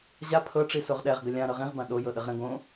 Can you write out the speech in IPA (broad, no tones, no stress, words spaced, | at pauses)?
ʑa pʰɤʈ͡ʂi soʁɗɛʁɡə lʲã ɾɤʁĩʁbã ɗojɤɗəʁ ɾə̃ ɡõ